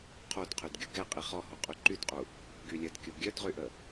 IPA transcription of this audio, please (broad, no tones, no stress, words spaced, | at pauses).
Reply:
qʰodqʰydɡʲu ɡɛ qʼiχɔho qʼyǃydqʼu | ɡylʲədkʲo ɡʲœdʁyʔə